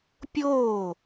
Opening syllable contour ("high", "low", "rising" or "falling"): falling